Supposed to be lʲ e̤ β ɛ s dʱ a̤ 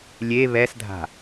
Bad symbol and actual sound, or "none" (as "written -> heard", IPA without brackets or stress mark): e̤ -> e